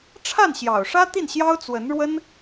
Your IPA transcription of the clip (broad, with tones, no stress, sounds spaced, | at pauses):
ʈ͡ʂʰ a˥˩ n ɕ j ɑ˨˩ ʊ̯ ʂ ä˥ t̪ i˥˩ n ɕ j ɑ˥ ʊ̯ t͡s w ə˧˥ n ɻ w ə˥ n